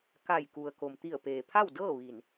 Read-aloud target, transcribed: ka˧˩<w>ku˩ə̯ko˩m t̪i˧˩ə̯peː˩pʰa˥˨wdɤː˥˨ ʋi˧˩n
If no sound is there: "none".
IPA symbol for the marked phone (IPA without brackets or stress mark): j